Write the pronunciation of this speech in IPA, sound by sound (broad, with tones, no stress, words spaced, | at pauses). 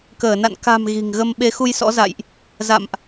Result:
kəː˧˩na̰˧˨n ka̤˨˩m ɣi̤˨˩ŋɣə˧m ɓe˨˦xu˧j sɔ̰˧˥za̰˧˨jʔ | za̰˧˨mʔ